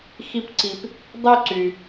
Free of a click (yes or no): no